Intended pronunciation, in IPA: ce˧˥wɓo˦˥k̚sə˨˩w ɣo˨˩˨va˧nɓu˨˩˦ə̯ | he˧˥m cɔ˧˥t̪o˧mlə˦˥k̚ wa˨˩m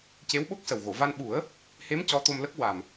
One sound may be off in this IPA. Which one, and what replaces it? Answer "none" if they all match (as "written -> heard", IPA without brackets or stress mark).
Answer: none